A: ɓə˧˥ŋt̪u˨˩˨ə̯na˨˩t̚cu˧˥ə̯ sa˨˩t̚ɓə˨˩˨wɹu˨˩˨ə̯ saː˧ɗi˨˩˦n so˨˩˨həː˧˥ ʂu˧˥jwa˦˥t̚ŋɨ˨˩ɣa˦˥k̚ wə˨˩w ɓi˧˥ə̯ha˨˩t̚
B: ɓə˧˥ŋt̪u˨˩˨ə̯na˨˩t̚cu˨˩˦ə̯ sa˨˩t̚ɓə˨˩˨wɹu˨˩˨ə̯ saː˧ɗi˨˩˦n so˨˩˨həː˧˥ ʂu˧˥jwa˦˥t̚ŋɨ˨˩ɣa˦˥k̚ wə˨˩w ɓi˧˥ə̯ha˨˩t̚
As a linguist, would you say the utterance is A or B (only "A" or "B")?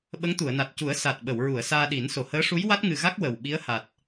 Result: B